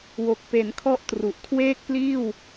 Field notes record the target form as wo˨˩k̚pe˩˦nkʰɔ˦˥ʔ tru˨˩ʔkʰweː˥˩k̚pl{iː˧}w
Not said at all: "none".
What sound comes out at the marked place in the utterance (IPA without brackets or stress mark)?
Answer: iː˥˩